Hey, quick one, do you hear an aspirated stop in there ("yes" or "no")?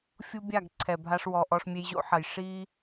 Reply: yes